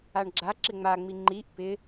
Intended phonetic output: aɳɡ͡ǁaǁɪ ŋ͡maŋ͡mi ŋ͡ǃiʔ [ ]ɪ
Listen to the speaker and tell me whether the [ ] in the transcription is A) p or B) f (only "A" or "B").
A